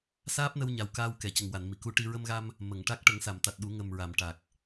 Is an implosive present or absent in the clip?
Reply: present